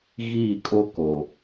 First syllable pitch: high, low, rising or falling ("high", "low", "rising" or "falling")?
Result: falling